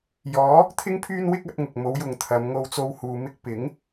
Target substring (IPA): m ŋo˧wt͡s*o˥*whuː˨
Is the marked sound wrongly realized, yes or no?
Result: yes